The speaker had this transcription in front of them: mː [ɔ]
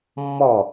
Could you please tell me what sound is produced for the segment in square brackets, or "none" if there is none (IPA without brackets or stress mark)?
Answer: ɔ